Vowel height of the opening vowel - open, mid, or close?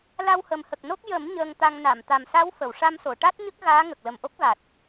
open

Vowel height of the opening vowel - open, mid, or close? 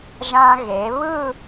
open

